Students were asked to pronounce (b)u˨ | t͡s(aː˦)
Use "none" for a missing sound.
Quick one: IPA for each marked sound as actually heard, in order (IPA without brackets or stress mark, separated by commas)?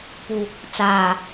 p, aː˨